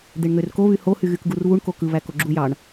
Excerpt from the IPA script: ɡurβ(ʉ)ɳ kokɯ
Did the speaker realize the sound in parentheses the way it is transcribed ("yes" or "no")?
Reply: no